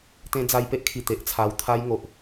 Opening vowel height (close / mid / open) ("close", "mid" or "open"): mid